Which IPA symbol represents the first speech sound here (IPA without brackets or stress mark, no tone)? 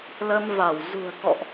l